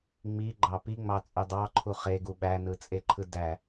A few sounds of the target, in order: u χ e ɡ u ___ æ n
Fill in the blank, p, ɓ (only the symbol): ɓ